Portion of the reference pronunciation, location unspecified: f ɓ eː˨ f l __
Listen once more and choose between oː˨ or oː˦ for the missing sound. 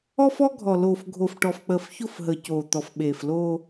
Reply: oː˦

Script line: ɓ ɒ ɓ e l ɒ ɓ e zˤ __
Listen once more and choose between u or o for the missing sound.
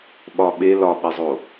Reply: o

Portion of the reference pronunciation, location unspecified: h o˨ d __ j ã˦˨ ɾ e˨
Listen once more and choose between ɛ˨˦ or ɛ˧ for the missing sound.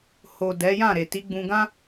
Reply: ɛ˨˦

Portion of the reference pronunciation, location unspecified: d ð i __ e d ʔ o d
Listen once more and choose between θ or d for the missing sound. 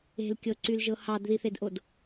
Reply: θ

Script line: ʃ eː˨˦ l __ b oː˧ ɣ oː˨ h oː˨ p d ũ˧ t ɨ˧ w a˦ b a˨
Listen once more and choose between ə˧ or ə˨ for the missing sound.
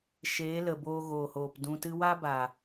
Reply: ə˨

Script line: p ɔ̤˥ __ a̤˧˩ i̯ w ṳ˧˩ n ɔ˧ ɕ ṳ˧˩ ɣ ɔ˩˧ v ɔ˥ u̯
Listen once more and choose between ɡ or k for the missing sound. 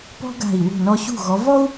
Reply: ɡ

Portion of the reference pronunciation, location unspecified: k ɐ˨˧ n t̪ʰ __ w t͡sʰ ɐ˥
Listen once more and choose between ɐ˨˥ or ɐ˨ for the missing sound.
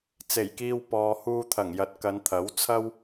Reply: ɐ˨˥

